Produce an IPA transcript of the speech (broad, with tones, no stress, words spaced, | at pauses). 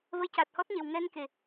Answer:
və˧jca˨˩t̚hɔ˦˥t̚ɲe˨˩w ŋɛ˧nke˨˩˨